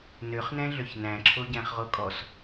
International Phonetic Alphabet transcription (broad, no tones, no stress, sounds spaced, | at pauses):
n ø χ n ɛ̃ ɮ ø ç n æ̃ ǁʰ o ɟ æ̃ χ ʁ o kʼ ɔ s